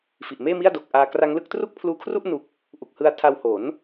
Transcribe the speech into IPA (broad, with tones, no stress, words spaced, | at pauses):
fi˨˩ʔmeː˥˩mi˥˩a̯do˨˩k̚ ʔaː˧ kra˦˥ŋlɯ˦˥k̚ tru˥˩k̚pʰluː˧kʰru˥˩ʔ nu˦˥k̚ | ʔu˨˩k̚hɯ˧a̯ tʰa˧whoː˩˦n